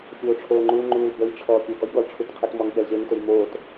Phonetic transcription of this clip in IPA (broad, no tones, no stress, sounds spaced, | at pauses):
fʲ oː ʈ͡ʂʰ oː ŋ͡ǃ u l ŋ͡ǃ uː l b ə j ʈ͡ʂʰ ɔː pʲ ɵ ɡ ɔ j ɠ ɔ l ʈ͡ʂʰ u t qʰ ə t m ɔ ŋ ɠ ɛ l ʑ e ŋ t ɵ j m oː t